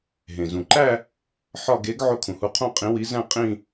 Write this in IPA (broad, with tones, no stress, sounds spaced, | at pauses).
ɦ ẽ˩ z ũ˩ ǃ æ˥˧ | ħ ɒ˥˧ ɡ e˨˥ ɡ ʕ o˥˩ kʰ ũ˩ h u˨˥ qʰ õ˥˩ qʼ ĩ˨˥ w i˨˥ z æ̃˥˧ qʼ ĩ˥˧